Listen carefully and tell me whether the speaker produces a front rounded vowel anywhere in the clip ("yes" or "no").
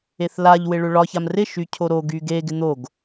yes